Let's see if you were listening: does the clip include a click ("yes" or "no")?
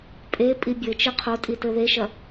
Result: no